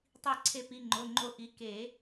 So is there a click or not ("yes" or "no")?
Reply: yes